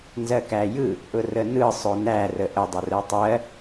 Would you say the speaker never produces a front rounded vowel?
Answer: yes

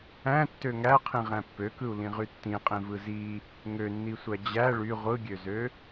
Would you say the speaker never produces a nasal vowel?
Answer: no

